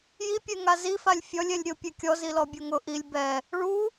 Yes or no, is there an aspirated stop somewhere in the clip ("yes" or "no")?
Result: no